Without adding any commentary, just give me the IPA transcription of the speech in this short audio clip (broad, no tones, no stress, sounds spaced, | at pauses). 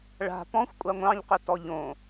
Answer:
ɭ a̤ p ɔ̃ xʷ kʷʼ ɑ ŋʷ ɑ̃ ʎ q ʏ t ɔ ʎ õ